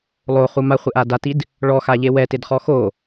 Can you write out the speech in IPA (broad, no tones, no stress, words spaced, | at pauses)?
lˠoχu maχʷɪʔa datid | ɭɔxaʎe wɛtɪdχɔ xo